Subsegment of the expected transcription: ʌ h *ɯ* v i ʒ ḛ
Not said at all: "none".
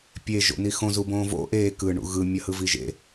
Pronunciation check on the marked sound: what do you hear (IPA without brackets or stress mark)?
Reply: ɯ